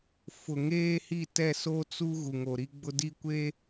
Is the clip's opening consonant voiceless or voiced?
voiceless